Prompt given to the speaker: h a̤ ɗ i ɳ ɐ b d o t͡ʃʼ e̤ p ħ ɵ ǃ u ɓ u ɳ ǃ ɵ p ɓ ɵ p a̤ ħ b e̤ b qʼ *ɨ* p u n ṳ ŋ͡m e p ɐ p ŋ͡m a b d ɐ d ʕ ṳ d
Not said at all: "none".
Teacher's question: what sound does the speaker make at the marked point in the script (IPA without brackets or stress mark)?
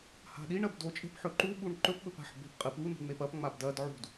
ɨ